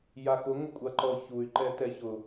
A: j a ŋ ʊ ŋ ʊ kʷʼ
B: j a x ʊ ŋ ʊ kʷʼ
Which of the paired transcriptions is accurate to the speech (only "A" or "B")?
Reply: B